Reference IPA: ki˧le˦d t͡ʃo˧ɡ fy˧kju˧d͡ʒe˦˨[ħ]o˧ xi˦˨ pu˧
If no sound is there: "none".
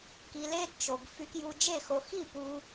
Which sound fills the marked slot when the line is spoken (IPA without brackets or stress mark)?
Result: x